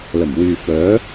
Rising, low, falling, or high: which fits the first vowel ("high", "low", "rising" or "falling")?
low